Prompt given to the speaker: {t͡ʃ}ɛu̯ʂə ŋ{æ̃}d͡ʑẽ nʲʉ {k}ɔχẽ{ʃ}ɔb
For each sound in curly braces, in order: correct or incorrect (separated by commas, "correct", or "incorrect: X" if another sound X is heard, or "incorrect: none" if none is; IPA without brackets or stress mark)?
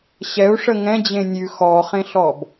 incorrect: ɕ, incorrect: ɛ̃, incorrect: x, incorrect: ɬ